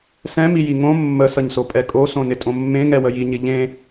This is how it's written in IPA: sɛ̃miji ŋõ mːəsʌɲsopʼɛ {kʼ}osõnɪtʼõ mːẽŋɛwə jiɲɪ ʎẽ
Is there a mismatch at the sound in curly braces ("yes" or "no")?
no